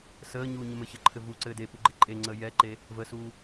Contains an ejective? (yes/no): yes